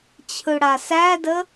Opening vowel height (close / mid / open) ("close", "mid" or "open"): close